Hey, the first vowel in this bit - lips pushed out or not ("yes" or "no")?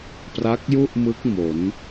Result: no